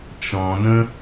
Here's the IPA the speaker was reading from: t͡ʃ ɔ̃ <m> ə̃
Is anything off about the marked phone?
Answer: yes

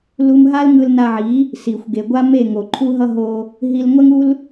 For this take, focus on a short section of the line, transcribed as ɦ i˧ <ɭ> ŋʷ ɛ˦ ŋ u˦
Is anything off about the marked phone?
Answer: yes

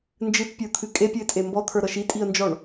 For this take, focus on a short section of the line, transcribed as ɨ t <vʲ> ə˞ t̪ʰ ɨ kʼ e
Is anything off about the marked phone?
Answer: yes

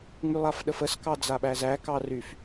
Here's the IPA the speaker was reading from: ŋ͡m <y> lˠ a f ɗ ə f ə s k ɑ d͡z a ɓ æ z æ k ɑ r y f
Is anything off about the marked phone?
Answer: no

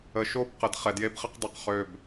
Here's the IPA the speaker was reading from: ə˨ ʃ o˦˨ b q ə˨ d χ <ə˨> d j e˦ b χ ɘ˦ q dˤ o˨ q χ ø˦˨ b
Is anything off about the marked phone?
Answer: yes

